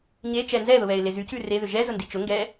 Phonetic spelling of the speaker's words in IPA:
ɲ e t͡ʃ ɛ n z ɛ ð ʊ β ɛ ɪ̯ l e z y c ʉ r e ð ʏ ʒ ɛ z ʊ n d i t͡ʃ ʊ ŋ ɡ ɛ

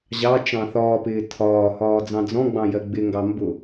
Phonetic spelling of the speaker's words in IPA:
ʑ ɑ t͡ʃ ɑ̃ θ ɒː p ɪː tʰ ɒː h ɒː d͡z ɑ̃ d͡z ɔ̃ ɡ͡b ɑ̃ j ɜ ɡ͡b ɪ ŋ ɡ ɑ m b ʊ

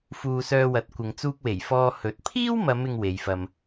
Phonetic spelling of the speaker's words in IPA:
f uː˧ s œː˧ w ɐ˨˥ t̚ kʷ ɪ˨ ŋ t͡s uː˧ k̚ w e˨˩ j f ɔː˧ h ɵ˨˥ t̚ pʰ iː˥ w m ɐ˨˧ m ɪ˧ ŋ w e˨˧ j f ɐ˧ m

